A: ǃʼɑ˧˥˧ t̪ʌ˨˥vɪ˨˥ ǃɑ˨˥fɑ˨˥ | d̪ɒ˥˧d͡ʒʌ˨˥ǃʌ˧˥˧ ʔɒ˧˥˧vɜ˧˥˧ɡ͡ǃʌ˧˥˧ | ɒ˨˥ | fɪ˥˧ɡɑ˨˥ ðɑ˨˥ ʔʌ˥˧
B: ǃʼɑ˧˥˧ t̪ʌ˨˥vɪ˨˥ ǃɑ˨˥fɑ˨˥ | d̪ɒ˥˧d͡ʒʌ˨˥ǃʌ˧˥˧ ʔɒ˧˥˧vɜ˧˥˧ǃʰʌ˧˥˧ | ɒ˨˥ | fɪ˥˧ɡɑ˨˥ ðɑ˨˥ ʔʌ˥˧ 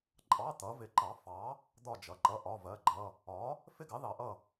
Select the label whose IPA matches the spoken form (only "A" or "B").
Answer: A